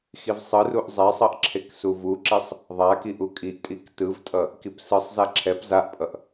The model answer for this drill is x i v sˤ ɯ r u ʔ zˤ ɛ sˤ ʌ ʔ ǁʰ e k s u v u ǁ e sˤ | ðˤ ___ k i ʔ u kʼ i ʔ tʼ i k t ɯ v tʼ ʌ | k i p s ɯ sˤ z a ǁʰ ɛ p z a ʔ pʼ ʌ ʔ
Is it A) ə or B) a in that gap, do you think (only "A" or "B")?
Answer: B